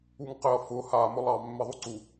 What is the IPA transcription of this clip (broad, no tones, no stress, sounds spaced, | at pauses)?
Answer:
u ŋ q ɪ ɐ̯ f ʊ h a m ʊ lˠ ɑ mː ɪ ðˤ u ǀ u